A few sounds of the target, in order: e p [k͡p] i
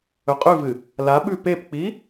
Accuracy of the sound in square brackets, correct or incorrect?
correct